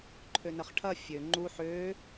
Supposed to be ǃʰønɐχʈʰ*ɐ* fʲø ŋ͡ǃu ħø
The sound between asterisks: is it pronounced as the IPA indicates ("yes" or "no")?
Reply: yes